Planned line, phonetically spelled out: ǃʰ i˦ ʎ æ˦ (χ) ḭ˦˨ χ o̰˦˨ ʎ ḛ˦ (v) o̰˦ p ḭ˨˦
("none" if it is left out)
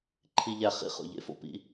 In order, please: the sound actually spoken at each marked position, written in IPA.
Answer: χ, f

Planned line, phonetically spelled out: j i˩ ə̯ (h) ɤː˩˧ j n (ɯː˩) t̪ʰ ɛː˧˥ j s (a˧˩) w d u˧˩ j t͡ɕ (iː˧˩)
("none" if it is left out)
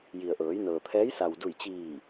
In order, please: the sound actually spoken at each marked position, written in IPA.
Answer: ʔ, ɤː˩, a˩, iː˧˩

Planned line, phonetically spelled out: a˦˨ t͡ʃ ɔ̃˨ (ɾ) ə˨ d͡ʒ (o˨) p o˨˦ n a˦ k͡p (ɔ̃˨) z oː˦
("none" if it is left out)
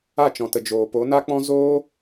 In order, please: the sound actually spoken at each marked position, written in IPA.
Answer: t, oː˨, ɔ̃˦

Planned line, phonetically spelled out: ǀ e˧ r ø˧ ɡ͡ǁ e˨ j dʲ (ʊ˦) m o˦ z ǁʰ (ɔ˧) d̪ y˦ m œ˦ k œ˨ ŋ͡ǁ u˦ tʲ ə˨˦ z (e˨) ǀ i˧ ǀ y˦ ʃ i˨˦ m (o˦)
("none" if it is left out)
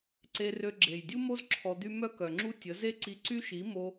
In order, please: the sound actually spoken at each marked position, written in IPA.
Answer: u˦, ɔ˧, e˦, o˦

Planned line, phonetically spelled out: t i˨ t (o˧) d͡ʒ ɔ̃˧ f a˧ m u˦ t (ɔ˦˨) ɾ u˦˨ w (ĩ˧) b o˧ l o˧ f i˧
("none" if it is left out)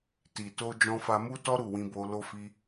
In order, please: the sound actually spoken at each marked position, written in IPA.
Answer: o˧, ɔ˦, ĩ˧

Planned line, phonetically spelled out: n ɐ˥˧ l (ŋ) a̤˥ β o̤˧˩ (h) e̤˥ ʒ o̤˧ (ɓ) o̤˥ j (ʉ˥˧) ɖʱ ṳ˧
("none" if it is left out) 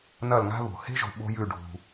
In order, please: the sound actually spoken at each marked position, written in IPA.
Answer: ŋ, h, ɓ, ʉ˥˧

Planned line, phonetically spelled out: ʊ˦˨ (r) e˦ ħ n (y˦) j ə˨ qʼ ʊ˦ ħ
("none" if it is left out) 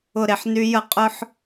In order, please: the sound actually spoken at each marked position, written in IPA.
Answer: ɾ, y˦

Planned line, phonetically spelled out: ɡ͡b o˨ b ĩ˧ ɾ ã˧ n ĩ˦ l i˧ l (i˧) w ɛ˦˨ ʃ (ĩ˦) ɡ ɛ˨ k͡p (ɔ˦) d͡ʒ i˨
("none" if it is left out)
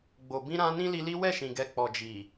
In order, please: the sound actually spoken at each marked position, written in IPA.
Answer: i˦, ĩ˨, ɔ˨

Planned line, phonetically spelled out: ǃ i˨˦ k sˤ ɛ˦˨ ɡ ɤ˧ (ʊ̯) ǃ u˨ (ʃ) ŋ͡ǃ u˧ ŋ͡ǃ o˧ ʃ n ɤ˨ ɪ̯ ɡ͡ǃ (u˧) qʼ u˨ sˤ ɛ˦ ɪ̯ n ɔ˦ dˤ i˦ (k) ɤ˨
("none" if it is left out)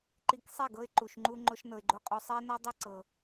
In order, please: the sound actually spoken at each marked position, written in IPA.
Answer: ɪ̯, ʃ, o˧, ǀ

